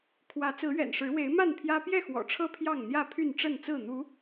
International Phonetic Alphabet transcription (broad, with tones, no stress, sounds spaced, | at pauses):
kʰ w ä˨˦ t͡s ɹ̩˨˦ ɥ ɛ̰˨˩ n ʂ ɻ̩˨˦ w e˨˦ ɪ̯ m a˥˨ n pʰ j ä˦ p j ɛ˥˨ x w ɔ̰˨˩ ʈ͡ʂʰ ɤ˦ pʰ j ɑ˥˨ ŋ n̪ j ä˥˨ pʰ y˥˨ n ʈ͡ʂ ə˥˨ n t͡s ɹ̩˥˨ n̪ u˨˦